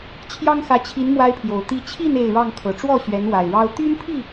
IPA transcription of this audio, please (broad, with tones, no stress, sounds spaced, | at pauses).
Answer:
t͡ɕʰ j ɑ˦ ŋ x ä˨˦ t͡ɕʰ i˨˦ n m w a˦ ɪ̯ pʰ j o˨˩ ʊ̯ t̪ i˦ t͡ɕʰ i˥˨ n e˥˨ ɪ̯ ɻ ɑ˥˨ ŋ kʰ ɤ˨˩ ʈ͡ʂ w ɔ˥˨ ɕ ɥ ɛ˨˦ n w a˨˩ ɪ̯ ɻ ɑ˦ ʊ̯ t̪ y˦ n pʰ i˥˨